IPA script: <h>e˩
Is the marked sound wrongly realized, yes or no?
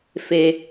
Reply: yes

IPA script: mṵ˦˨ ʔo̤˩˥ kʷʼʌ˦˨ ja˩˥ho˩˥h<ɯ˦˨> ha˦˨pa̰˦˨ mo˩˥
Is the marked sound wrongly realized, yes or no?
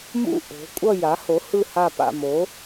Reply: no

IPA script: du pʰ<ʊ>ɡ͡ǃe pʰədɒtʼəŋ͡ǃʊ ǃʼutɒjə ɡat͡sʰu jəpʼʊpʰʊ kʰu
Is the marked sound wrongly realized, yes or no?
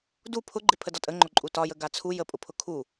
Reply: no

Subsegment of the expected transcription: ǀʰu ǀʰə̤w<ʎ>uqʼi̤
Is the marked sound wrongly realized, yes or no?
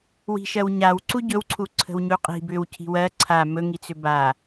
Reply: yes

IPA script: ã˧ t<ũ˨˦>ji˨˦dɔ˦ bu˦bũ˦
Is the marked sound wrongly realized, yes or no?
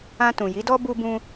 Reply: yes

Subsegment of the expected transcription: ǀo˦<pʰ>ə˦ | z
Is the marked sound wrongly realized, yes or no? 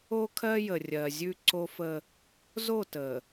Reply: yes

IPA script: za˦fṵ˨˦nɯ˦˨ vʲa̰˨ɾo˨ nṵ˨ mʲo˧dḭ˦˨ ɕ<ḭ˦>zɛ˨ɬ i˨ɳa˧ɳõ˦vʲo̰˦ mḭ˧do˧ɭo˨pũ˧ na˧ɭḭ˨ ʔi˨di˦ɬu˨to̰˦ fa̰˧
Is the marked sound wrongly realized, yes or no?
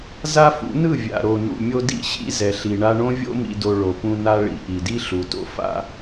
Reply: yes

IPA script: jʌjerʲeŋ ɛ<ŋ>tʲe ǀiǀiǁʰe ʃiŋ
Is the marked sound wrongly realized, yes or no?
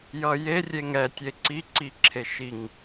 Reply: yes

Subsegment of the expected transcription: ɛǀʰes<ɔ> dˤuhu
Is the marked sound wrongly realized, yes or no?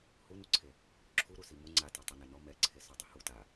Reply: no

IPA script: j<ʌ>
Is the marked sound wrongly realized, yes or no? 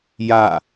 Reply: yes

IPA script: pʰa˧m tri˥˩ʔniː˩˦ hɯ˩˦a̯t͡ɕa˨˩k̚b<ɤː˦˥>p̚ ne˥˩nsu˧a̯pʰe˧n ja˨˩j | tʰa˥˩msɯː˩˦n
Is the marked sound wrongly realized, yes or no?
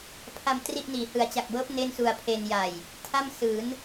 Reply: no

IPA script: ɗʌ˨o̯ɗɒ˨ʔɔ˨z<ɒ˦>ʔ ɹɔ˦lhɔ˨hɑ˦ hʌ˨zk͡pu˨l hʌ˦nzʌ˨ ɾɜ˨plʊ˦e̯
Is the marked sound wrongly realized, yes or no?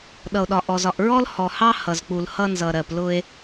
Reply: yes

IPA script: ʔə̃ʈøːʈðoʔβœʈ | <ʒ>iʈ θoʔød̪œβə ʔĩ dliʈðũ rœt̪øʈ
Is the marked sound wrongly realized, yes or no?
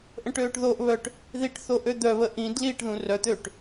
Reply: yes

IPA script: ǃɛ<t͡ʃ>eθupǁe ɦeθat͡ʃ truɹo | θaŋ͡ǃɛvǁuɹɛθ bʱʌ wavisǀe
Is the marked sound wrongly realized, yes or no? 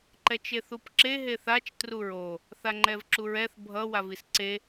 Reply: no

